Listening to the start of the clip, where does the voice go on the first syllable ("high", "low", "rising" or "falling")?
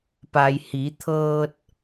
low